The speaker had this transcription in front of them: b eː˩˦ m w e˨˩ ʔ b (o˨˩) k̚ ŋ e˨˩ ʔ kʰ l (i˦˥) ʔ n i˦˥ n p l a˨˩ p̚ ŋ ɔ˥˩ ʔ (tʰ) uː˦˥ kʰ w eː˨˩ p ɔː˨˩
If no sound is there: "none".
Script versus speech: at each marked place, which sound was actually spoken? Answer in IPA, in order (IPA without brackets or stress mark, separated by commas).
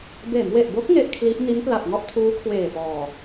o˦˥, i˦˥, tʰ